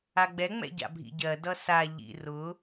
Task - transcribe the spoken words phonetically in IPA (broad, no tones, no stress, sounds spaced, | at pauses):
a ɡ͡b ɛ ŋ͡m ɛ̰ ɟ a̰ bʱ ḭ ɟ ɜ d ʌ s a ʎ ḭ r ʊ